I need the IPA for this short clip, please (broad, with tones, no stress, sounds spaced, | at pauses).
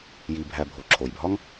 j i˨ bʱ æ˨ bʱ o˩ ǁʰ o˩ j bʱ ɒ˦ ŋ